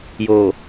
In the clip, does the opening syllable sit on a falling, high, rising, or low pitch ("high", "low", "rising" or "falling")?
low